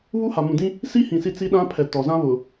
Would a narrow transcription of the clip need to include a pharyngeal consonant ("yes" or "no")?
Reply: no